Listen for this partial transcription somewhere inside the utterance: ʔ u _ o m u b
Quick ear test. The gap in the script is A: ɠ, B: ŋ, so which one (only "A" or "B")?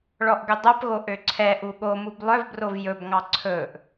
A